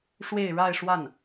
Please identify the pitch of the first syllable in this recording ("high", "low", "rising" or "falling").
falling